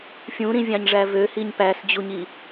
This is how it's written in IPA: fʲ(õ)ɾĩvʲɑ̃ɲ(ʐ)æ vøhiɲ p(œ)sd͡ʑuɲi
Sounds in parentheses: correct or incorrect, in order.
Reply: incorrect, correct, incorrect

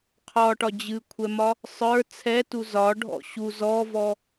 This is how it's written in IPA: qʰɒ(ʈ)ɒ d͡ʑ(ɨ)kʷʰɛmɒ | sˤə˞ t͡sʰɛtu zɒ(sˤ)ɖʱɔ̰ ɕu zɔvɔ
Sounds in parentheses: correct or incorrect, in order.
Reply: correct, correct, incorrect

